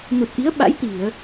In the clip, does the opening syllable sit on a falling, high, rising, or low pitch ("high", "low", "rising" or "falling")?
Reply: low